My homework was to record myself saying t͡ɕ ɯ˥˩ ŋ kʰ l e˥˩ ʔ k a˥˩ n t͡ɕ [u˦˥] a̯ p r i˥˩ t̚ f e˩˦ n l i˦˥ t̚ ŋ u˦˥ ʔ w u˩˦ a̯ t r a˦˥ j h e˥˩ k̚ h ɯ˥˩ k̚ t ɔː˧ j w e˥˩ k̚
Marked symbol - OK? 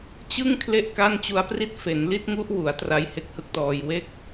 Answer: yes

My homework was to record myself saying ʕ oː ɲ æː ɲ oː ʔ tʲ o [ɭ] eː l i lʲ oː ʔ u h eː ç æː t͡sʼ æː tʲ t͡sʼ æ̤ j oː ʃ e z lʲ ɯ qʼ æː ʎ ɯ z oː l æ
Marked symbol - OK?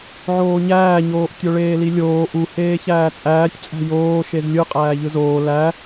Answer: yes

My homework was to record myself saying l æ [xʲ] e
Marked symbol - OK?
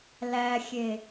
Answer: yes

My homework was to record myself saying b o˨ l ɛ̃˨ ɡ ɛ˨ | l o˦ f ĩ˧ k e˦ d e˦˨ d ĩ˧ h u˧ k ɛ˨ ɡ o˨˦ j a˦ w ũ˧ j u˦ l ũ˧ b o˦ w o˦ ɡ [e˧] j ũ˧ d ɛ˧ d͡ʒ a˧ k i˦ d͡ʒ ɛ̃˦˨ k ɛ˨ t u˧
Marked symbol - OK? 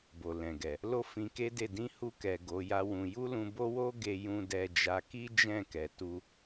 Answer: yes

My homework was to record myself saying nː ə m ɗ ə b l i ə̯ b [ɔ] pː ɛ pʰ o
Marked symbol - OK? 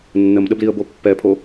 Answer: no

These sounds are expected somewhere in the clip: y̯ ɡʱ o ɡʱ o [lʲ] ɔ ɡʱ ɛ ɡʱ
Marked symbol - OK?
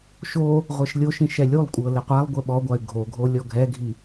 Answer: yes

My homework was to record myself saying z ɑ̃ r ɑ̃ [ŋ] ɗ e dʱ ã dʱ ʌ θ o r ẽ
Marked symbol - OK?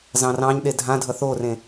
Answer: no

